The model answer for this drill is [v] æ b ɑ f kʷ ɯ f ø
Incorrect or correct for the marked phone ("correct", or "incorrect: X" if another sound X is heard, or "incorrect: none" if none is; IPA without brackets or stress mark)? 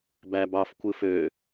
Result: incorrect: b